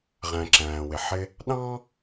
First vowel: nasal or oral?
nasal